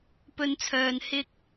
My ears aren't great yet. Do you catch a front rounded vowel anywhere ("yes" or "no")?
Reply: yes